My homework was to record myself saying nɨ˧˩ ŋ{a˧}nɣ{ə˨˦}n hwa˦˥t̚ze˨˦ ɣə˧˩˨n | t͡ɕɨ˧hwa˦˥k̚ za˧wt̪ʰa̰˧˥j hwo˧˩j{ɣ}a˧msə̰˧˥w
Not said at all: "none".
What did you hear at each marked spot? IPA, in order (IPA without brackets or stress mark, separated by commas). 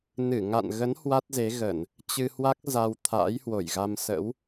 a̰˧˨, ə˨˦, ɣ